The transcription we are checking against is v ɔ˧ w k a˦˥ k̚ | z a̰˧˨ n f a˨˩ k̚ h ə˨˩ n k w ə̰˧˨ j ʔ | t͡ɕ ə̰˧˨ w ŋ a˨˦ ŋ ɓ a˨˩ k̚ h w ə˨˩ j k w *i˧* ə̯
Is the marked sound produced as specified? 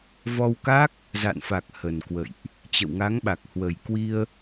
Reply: yes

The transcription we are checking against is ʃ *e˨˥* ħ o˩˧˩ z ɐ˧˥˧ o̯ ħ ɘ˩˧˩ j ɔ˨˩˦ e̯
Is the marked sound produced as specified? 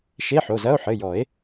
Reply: no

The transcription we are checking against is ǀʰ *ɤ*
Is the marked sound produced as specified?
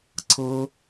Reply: yes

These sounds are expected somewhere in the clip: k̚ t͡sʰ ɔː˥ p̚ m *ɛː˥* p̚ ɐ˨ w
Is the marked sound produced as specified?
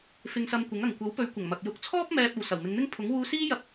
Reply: no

